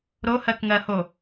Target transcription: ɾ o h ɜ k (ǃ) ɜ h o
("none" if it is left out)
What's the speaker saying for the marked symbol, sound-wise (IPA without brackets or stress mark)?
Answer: ŋ